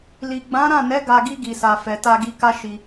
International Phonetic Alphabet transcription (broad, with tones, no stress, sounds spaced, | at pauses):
l i˨ ɡ͡b ã˨˦ ɾ ã˦˨ n ɛ˨˦ ɡ a˧ ɡ i˧ ɡ i˨ s a˨ f ɛ˨ t a˧ ɡ i˧ k a˦ ʃ i˧